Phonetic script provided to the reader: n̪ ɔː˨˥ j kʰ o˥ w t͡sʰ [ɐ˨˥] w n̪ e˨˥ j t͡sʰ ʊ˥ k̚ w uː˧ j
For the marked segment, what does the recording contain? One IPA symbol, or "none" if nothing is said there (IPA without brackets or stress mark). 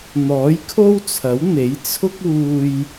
ɐ˨˥